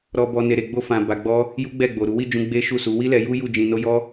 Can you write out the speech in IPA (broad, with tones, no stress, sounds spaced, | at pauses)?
ɾ ɔ˨ b ɔ˨ n e˨ ɾ e˨ ɡ͡b o˧ f ã˨ b a˨ ɡ͡b ɔ˧ | j u˦ ɡ͡b ɛ˦˨ ɡ͡b o˨ ɾ u˨˦ w i˦˨ d͡ʒ ũ˧ ɡ͡b e˦ ʃ u˦˨ s u˨˦ w i˦ l ɛ˧ j u˦ j u˦˨ d͡ʒ ĩ˧ n o˦ j ɔ˦